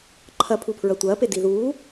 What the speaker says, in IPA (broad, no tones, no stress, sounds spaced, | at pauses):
ǃʰ ɐ pʰ u pʰ ɹ ɐ tʷ ɐː p e d i ð uː